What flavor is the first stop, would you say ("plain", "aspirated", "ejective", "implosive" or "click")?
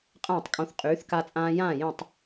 ejective